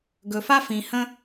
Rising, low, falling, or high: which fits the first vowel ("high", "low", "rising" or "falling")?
low